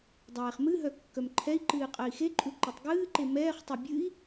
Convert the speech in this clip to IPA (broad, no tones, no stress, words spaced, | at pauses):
dˤɛːχmɨɦœ kːœmǃʰɛi̯ǃɨː qʼɜi̯xeǃʼu ǃɨtˤɡɨːǃe mɛːχtˤœ bʲɨi̯